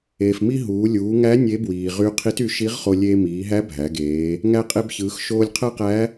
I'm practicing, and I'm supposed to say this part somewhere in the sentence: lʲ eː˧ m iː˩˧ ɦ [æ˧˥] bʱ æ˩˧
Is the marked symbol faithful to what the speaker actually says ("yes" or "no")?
yes